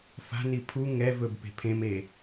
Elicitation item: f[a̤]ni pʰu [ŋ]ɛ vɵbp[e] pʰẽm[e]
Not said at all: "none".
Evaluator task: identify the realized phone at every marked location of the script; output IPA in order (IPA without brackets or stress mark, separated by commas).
a̤, ŋ, e̤, e